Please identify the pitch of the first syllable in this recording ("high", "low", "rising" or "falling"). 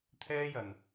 high